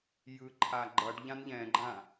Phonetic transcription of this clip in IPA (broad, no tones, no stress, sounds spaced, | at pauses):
j ɯ ǃʰ a ɡ͡ǃ ʌ ɖ ʎ ã n ʎ ɛ̃ ɡ͡ǃ ã